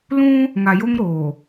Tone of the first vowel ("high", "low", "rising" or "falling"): high